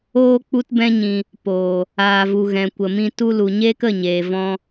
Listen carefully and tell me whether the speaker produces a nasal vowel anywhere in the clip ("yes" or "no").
yes